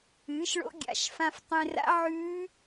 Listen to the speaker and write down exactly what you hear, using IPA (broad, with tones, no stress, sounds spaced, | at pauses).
ɨː˩˥ ʃ ɭ o̰˧˥ ɡʲ a̰˩˧˩ ʃ f ã˧ f tˤ ẽ˧ r a̰˧˥ ʕ ʉː˧˥